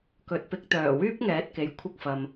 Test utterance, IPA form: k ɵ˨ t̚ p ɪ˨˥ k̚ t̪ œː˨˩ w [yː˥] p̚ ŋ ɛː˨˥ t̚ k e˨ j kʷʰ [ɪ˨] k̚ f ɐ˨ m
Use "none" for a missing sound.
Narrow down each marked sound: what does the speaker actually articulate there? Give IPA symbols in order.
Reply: yː˥, ɪ˧

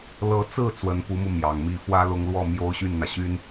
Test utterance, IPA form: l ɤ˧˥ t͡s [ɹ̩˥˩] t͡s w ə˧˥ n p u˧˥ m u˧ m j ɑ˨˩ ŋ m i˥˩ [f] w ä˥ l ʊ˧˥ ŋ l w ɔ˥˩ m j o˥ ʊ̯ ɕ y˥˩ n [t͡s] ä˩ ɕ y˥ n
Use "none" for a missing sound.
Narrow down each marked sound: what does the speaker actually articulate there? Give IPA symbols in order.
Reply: ɹ̩˥˩, f, n̪

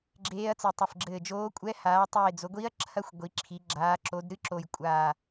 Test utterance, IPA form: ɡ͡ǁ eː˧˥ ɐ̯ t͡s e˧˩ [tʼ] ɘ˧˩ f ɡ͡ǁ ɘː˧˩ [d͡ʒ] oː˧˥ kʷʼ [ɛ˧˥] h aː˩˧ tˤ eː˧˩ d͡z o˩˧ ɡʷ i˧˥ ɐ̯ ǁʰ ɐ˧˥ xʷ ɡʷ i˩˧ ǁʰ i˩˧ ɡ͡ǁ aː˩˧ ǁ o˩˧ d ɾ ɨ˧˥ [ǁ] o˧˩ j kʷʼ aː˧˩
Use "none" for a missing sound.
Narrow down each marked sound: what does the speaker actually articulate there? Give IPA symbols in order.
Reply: tˤ, d͡ʒ, ɛ˧˥, ǁ

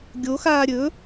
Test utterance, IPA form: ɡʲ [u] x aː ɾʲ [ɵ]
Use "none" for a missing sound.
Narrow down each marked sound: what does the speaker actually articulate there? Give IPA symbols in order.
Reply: o, ɵ

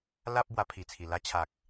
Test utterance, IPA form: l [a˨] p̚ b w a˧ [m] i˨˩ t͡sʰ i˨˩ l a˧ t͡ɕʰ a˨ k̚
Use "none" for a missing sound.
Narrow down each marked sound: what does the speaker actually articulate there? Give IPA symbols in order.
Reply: a˦, pʰ

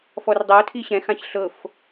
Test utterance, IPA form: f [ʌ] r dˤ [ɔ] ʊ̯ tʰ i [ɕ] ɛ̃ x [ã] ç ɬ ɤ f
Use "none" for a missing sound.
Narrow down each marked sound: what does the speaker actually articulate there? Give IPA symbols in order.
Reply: ɔ, ɤ, ɕ, ã

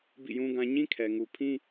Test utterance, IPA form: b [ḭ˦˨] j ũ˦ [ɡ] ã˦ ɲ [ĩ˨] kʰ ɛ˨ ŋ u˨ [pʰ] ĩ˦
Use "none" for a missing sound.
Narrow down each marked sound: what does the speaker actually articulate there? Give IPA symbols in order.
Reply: ḭ˦˨, ɡ, ĩ˦, pʰ

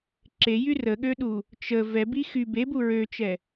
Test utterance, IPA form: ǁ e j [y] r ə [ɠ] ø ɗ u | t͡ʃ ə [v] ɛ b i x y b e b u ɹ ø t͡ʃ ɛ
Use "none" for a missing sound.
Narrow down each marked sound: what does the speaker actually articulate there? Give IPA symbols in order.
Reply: y, ɠ, v

